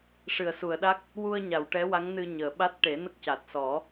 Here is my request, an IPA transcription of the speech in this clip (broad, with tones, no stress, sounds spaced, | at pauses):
ʂ ɨ˨˩˨ ə̯ s u˨˩˨ ə̯ ɗ a˦˥ k̚ | w u˧ ə̯ ɲ a˨˩˨ w ʈ ɛ˧˥ w a˧˥ ŋ n ɨ˧ ɲ əː˨˩˨ ɓ a˦˥ t̚ ʈ e˨˩˦ n ə˦˥ k̚ c a˨˩ t̚ s ɔ˨˩˦